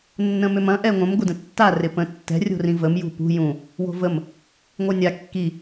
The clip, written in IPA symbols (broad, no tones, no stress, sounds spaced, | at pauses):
nː ə̃ m ʏ m ɐ̃ ʔ ɛ ŋʷ ə̃ m ɡʷ ɪ d ə̃ tː a r ɪ p ə̃ tː ɛ̤ rʲ o̤ r ĩ v ə m j ṳ p ṳ j ũ | w o̤ v ə m | ŋʷ œ nʲ a kː i